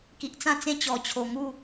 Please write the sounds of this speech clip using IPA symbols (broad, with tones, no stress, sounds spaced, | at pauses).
k i˨ ʔ t͡s ã˥˧ t͡s ẽ˥˧ t͡ɕ ɔ˨˩ t͡ɕʰ o˨˩ ŋ u˥˧